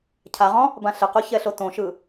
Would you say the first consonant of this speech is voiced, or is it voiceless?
voiceless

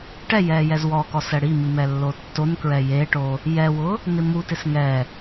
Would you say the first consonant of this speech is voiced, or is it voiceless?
voiceless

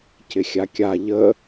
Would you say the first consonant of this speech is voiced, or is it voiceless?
voiceless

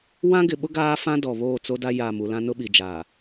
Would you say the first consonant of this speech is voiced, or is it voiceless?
voiced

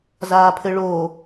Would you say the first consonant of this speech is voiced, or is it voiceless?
voiced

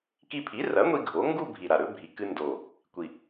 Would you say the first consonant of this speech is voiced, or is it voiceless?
voiceless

